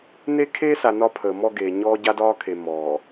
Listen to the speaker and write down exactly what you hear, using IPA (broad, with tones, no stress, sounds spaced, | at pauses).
n e˦ kʰ eː˦ s a˨ n ɒ˦ pʰ əː˨ m ɔ˦ ɡ eː˨ ɲ ɔː˦ ɟ a˦ d ɒː˦ kʰ e˨ m ɔː˨